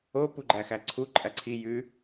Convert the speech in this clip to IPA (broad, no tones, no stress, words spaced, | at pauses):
o puɡ͡ǃæxæǀʰu ǃʼæǀʰi jʉ